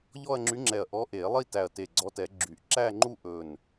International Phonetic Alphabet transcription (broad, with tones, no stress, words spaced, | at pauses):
ʎɔ˥˧ɐ̯ŋ͡ǁy˧˥ŋ͡ǁɛ˧˩ɐ̯ ʔɔ˧˥ʔe˨˩˦ lˠi˥˧tæ˧˩ɐ̯ te˧˩ɡ͡ǀɔ˧˥tɛ˨˩˦ ɡ͡ǁy˨˩˦ʔ ǁæ˥˧ŋ͡ǃu˥˧ ʔɵ˧˩n